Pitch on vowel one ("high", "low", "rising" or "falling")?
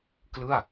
falling